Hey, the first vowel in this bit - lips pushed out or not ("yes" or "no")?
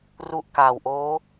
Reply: yes